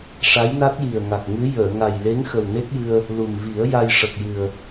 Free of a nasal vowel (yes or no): yes